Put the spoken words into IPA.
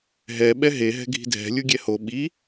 ɦ ɛ ɓ ɛ ɦ e ɦ ɛ̤ ɡʱ i̤ dʱ ɛ̤ lʲ u ɡʲ ɛ h o ɓ i

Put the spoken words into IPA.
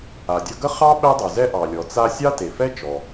a˩ dʲ ʌ˦ ɡ ə˥ χ ɑ˥ ɓ ɛ˦ dˤ u˩ z ɛ˦ ʔ ɑ˩ lʲ ɔ˩ t͡s a˦ sʲ ɑ˥ t e˩ f ɛ˥ t͡ʃ ɔ˩

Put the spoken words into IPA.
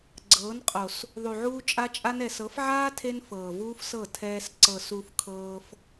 ɡ͡ǀ ɤː˨˦ n qʼ o˨ s | ðˤ u˨ ʕ uː˧ t͡ʃʼ a˧ t͡ʃʼ a˧ n ɛ˨ s ɤ˨˦ f ʕ aː˦ tʰ e˧ n f ɤː˨ v uː˦ f s ɤ˦˨ tʰ ɛː˧ s ǀ ɤ˨ s u˧ f kʰ ɤː˧ f

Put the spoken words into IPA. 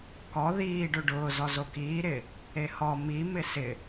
k ɔ ð iː ɖ o ɖ ʊː z ɔ z o k iː ɾ ɪ | e h ɔ m i m ɪ s ɪ

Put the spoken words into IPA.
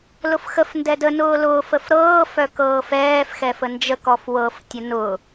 l ʊ f x ə f n d ɛ d ə n ʊː l ʊː f ə f ɾ ɤː f œ k ɤː f ɛː f x ɛ f ə n d͡ʒ ə k ɔ f w ɤ f tʲ ə n ʊ

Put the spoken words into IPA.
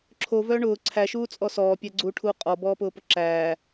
ǁʰ o v œː ɳ ʊː ǀʰ æ ʃ uː t͡sʼ ɔ s ɔː pʲ æ ɡ͡ǀ uː ʈʰ uː qʼ ɔ b ɔː p ʊː p ʊ ǁ æː

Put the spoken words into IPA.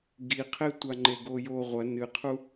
ɡ i qʰ e tʷ a ŋ͡ǃ e ɡ o j o ʁʷ ɐ n ɨ qʰ u

